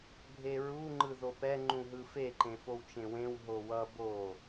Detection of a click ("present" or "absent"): present